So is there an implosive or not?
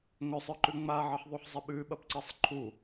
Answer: yes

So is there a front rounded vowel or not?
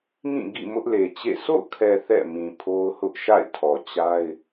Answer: no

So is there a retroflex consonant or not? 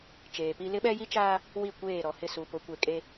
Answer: no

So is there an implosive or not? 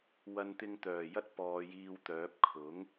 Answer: no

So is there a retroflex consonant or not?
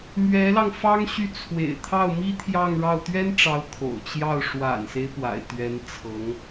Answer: yes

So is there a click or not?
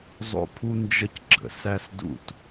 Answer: yes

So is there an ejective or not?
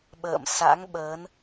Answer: no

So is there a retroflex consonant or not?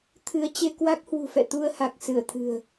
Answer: no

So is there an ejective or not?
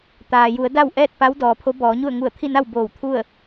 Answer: no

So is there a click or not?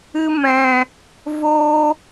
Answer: no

